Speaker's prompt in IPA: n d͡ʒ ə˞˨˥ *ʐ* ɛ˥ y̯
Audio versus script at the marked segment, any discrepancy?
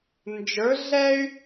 yes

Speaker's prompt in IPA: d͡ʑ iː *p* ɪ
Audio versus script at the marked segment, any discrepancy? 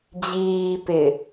no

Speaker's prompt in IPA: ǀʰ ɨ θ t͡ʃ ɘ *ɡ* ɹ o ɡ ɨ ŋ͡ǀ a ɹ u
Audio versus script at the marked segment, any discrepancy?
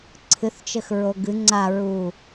yes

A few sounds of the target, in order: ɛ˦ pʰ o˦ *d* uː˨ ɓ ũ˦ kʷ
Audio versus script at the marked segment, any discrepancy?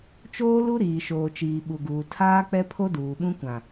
no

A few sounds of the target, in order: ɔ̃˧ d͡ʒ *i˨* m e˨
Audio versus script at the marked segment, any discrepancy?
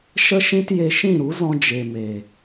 yes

